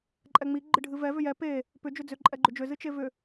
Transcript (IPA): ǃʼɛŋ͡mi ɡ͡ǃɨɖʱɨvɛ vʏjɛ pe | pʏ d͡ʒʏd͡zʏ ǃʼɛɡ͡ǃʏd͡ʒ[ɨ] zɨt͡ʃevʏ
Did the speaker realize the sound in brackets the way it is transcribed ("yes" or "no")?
no